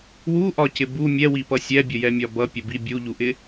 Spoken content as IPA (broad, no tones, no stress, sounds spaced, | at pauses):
w u ʔ ɒ c ɪ b u mʲ ɛ w i p ʌ sʲ ɛ bʲ ə j ɛ mʲ ɒ b ʌ pʲ ə b i bʲ u ʎ u ʔ ɪ